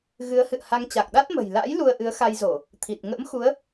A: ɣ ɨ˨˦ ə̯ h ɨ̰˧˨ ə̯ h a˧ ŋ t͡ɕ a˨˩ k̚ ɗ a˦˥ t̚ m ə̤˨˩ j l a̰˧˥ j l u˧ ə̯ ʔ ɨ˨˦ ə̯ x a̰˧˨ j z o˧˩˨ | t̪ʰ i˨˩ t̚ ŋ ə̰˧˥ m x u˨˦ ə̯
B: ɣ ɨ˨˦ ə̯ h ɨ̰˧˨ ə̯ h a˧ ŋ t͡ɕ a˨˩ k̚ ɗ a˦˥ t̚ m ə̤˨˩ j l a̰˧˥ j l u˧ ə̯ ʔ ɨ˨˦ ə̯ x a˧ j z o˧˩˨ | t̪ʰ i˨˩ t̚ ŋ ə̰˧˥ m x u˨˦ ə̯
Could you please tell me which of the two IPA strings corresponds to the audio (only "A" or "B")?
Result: B